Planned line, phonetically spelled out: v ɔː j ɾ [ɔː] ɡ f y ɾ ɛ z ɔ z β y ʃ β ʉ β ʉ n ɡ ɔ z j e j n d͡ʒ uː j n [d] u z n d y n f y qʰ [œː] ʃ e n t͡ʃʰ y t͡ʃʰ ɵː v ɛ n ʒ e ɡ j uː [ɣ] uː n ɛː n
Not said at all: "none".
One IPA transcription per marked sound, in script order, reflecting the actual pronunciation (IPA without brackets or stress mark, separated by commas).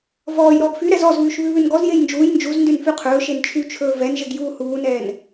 ɔː, d͡ʒ, ɵː, h